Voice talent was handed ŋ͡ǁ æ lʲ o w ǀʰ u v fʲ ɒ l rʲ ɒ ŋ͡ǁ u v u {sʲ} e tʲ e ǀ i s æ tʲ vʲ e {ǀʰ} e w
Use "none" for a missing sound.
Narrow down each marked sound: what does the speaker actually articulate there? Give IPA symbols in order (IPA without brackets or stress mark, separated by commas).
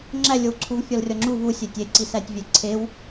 sʲ, ǀʰ